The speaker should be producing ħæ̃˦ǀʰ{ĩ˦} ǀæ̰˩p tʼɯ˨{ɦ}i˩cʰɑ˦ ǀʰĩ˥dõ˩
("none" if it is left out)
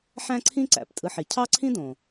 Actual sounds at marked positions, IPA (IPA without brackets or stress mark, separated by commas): ĩ˦, ħ